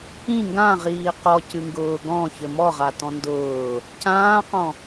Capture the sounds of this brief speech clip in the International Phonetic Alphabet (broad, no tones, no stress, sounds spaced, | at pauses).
ĩ ŋ ɡ ã ʁ iː q ɔ c ɨ ŋ ɡ ʊː ɡ ɔ̃ ç ɘ m ɔ ʁ a t ɔ̃ n d ʊː | c ãː q ɔ̃